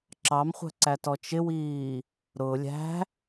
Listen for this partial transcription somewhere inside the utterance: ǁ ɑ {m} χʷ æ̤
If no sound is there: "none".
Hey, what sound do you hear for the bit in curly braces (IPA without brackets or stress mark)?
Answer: m